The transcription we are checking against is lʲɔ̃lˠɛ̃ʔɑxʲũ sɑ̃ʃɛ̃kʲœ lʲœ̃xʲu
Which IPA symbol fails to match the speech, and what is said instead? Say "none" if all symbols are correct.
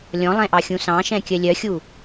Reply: œ̃ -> œ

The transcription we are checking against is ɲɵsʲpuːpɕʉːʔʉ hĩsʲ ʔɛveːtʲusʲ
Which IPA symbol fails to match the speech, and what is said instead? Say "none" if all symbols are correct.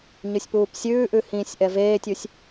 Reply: ɕ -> sʲ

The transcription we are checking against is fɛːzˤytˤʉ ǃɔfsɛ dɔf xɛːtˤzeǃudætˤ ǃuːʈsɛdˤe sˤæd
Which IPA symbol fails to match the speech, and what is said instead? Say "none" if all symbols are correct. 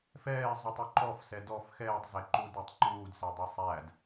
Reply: ʈ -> d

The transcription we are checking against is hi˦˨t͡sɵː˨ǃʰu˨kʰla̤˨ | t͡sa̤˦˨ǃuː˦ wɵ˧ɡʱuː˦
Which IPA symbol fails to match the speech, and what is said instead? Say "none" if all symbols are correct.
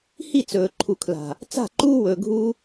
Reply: none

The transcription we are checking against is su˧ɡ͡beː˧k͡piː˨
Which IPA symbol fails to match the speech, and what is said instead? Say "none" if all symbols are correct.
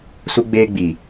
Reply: k͡p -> ɡ͡b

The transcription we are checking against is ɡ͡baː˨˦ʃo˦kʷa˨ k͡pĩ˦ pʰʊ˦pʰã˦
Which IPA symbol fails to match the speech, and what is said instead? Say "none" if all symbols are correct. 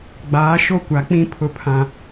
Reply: none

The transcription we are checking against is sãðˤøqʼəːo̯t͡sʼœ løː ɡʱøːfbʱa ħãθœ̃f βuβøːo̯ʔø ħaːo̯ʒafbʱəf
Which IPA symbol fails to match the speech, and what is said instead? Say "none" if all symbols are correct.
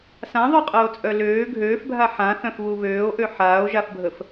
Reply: none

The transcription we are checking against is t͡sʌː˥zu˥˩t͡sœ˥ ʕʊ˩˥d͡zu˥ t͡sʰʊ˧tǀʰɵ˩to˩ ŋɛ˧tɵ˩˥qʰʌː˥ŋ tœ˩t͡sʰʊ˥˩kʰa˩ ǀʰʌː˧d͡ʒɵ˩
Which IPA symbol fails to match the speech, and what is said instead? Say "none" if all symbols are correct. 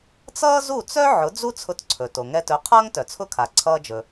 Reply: none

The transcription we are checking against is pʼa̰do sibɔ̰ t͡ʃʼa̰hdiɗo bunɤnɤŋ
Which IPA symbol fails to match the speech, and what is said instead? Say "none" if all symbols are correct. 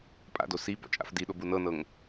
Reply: h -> f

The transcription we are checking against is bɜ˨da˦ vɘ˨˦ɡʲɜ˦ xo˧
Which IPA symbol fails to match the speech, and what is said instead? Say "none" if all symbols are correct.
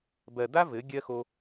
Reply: none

